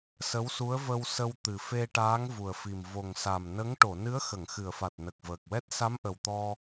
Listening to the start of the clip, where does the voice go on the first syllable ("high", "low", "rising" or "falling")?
rising